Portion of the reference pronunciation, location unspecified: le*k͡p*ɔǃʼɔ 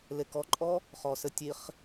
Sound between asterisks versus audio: incorrect: k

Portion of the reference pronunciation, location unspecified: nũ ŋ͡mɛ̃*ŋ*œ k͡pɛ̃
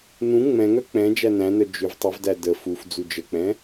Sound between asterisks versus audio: correct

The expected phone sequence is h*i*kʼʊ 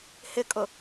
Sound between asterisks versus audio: incorrect: ɪ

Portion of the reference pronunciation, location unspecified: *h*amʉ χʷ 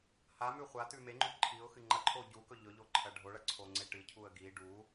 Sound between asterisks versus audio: correct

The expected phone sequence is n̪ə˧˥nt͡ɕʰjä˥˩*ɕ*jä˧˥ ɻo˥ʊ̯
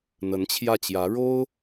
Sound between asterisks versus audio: incorrect: t͡ɕ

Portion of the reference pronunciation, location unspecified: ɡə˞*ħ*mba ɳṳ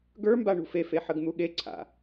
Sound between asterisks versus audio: incorrect: none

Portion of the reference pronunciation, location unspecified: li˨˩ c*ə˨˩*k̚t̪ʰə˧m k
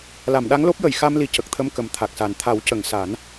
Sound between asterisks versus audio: correct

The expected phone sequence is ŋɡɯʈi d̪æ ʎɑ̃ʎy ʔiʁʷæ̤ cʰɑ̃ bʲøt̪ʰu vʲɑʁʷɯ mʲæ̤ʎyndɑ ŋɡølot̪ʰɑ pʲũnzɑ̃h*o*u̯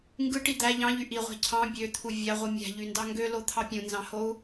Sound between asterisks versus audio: correct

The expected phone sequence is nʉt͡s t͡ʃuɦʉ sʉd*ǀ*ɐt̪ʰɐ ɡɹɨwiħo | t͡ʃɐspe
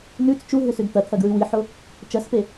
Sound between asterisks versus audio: incorrect: t̪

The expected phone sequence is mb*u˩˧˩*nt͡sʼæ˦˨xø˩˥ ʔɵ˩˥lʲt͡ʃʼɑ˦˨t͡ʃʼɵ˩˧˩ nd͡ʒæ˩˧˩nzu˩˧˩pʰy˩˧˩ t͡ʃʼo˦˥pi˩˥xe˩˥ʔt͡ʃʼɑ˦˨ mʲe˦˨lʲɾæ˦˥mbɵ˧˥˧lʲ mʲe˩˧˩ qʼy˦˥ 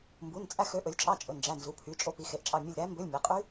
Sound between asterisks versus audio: correct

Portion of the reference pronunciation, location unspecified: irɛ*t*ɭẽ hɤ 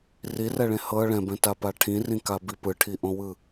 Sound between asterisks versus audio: incorrect: none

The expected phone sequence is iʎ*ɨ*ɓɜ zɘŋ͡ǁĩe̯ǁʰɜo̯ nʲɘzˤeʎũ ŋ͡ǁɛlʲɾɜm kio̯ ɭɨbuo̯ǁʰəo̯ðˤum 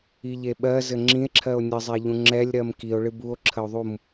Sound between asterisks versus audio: incorrect: e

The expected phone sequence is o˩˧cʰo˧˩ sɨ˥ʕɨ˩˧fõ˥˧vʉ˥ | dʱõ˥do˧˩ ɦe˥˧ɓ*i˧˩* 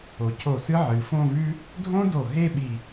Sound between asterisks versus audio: correct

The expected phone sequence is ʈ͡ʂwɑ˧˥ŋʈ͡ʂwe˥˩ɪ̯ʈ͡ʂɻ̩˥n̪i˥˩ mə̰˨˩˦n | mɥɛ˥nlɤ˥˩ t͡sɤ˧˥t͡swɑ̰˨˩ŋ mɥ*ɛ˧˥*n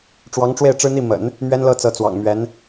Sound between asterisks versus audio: correct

